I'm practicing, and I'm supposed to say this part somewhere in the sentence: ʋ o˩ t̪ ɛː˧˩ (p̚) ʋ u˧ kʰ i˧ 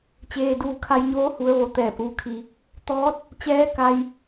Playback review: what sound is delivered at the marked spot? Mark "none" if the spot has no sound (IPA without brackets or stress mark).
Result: p̚